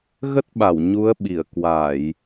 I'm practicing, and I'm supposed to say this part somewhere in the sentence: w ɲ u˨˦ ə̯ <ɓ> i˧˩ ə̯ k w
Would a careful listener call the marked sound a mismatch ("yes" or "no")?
no